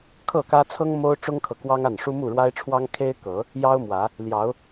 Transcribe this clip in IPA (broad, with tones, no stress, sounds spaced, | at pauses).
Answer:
kʰ ɤ˥˨ k ä˦ t͡sʰ ɤ˦ ŋ m o˦ ʊ̯ ʈ͡ʂ ʊ˦ ŋ kʰ ɤ˨ k w ɑ˦ ŋ a˥˨ n ʂ u˦ m u˥˨ ɻ w a˦ ɪ̯ ʈ͡ʂʰ w ɑ˦ ŋ kʰ e˦ ɪ̯ k ɤ˨˦ | j ɑ˦ ʊ̯ m w ä˨˦ | l j ɑ˨˦ ʊ̯